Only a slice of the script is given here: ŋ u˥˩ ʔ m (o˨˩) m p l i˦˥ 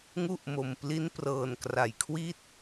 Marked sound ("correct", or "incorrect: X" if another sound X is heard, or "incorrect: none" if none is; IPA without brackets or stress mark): correct